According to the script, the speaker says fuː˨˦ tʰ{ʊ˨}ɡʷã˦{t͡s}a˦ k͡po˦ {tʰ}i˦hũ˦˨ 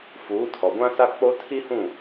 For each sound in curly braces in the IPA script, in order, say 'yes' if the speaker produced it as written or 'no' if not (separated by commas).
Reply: no, no, yes